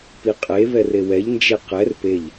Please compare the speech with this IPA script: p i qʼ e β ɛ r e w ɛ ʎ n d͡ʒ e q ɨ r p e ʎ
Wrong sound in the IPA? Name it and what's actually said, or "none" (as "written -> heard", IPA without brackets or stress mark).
ɨ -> ɛ